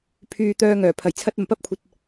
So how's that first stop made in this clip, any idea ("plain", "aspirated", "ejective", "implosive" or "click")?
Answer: aspirated